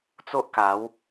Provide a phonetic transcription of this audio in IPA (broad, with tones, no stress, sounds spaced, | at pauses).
t͡s o˦ ʔ k a˨˦ w